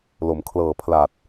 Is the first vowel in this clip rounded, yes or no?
yes